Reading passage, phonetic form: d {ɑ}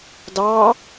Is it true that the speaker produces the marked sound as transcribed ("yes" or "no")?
yes